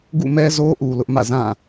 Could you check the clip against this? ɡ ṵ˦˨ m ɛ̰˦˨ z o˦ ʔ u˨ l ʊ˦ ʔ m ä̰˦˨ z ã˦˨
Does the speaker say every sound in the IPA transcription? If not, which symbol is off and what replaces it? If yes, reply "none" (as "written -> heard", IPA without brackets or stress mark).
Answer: ɛ̰˦˨ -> ɛ˦